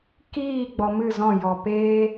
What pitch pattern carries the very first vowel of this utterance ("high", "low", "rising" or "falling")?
falling